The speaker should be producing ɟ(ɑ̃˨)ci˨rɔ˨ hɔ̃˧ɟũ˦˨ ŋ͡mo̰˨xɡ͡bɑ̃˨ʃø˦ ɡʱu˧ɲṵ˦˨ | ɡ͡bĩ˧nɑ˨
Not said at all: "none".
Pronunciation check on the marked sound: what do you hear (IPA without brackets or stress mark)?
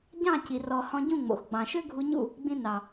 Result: ɑ̃˦˨